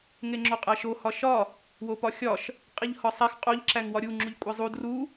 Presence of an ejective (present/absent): present